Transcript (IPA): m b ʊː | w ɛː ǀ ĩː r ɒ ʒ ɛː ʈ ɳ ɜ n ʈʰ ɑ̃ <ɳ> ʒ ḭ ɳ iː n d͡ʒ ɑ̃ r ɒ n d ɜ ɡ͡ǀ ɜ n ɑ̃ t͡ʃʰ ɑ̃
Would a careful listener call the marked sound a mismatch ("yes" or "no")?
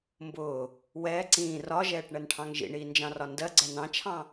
yes